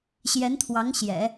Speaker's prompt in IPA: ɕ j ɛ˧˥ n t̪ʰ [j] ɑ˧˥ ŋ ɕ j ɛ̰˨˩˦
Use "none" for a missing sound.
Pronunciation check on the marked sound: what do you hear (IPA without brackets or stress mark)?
w